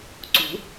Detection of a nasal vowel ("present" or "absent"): absent